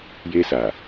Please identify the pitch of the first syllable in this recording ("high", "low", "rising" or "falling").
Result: high